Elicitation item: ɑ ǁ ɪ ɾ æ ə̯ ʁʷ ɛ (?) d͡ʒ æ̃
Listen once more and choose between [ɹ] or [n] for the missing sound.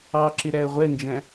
n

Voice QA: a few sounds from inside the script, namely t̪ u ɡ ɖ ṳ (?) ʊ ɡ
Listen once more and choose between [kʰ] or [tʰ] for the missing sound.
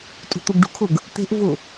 kʰ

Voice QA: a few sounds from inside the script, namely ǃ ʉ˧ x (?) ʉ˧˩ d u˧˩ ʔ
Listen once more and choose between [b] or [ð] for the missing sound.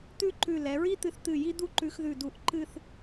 ð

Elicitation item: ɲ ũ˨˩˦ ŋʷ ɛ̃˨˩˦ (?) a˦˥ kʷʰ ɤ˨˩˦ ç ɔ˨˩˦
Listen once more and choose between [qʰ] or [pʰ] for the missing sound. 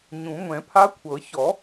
pʰ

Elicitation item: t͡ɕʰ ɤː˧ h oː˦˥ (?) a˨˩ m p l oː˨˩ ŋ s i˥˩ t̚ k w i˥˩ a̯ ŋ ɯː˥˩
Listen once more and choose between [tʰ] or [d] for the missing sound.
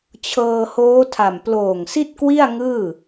tʰ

